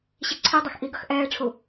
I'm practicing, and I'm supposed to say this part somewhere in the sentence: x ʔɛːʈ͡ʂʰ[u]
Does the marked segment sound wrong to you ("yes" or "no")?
no